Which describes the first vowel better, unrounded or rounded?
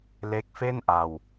unrounded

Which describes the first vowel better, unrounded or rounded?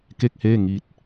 unrounded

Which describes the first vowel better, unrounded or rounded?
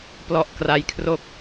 rounded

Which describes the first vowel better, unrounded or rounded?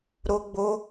rounded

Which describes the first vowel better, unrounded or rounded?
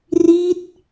unrounded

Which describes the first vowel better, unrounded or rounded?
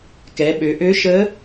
unrounded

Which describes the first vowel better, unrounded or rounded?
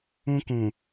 rounded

